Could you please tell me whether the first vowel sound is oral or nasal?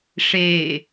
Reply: oral